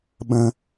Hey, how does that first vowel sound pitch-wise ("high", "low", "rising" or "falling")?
low